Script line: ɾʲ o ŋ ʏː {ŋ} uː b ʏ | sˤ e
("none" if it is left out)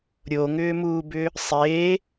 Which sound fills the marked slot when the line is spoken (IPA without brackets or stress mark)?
m